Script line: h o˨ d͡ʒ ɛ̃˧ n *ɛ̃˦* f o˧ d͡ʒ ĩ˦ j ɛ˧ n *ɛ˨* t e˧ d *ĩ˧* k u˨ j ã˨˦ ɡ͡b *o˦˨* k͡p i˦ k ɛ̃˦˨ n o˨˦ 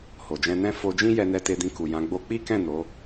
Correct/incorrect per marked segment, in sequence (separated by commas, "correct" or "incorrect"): correct, incorrect, correct, incorrect